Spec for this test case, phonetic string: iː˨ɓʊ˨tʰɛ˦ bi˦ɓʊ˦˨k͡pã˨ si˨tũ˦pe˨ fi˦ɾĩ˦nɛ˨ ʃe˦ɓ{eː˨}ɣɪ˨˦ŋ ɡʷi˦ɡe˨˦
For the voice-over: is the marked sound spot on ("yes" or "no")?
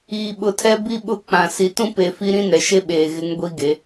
yes